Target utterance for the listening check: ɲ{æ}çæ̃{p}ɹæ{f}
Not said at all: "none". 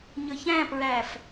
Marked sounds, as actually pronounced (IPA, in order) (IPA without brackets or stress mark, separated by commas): ə, p, f